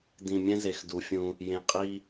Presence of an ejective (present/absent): present